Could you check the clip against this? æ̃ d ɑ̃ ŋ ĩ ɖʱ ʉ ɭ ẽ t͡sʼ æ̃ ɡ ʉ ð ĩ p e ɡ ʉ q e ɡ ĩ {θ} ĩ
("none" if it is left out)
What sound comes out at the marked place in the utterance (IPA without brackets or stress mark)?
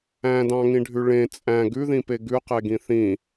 θ